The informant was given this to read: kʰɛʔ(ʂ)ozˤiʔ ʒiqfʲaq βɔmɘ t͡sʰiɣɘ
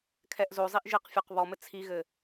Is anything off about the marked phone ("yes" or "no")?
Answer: yes